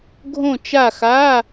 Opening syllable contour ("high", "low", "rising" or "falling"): falling